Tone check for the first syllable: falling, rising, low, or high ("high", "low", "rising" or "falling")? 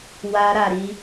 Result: high